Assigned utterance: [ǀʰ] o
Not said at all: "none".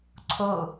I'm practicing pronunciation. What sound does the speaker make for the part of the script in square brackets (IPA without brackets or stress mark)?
ǀʰ